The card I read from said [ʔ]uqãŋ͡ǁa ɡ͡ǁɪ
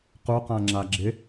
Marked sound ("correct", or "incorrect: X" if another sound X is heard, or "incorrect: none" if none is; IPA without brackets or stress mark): incorrect: q